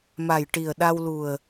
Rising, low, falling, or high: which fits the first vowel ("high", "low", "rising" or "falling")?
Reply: low